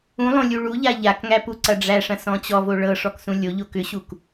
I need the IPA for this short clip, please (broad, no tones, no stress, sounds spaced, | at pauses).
ũ lˠ õ lʲ u ɭ u ʎ a ʎ a k ŋ æ p u ǀ ɐ ɖ͡ʐ æ ʂ ɐ̃ s ɔ̃ t͡ɕ ɔ v o ɭ ɤ ʂ ɔ k s ũ lʲ o ʎ o k ʏ ɕ u k